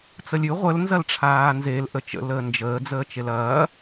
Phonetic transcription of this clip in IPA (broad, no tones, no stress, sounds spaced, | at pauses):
t͡s ə lʲ ʉ ʁʷ ə l n z ɐ l ʈ͡ʂʰ aː n z e l ʔ ə t͡ʃ ə̰ l əː n d͡ʒ əː d͡z əː t͡ʃ e l ɐː